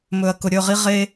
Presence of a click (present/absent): absent